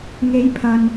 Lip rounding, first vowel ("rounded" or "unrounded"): unrounded